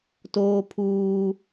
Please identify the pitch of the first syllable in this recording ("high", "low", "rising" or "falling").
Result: high